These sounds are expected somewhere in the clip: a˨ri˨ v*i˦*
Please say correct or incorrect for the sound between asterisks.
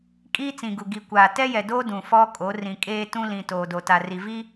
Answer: correct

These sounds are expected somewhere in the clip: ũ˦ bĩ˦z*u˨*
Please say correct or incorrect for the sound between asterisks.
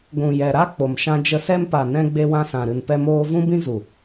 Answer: correct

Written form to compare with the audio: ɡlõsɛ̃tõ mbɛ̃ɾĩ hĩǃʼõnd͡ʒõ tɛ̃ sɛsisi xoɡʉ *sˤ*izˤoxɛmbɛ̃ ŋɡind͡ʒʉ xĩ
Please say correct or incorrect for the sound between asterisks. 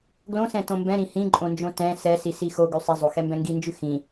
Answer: correct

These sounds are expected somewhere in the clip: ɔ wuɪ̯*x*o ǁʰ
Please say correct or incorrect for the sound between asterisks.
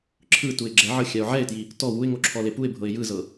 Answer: incorrect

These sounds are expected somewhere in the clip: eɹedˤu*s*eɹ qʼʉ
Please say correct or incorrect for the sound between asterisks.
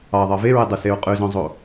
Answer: correct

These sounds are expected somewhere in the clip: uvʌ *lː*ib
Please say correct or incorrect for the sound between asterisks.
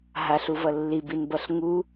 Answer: correct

